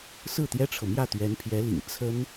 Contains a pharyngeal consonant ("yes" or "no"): no